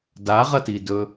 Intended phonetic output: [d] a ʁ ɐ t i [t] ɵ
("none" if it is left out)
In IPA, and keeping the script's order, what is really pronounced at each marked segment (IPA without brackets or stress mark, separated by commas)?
d, d